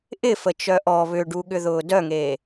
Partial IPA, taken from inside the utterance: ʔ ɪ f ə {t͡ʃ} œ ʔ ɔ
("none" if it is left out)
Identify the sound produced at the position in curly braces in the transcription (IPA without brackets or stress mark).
t͡ʃ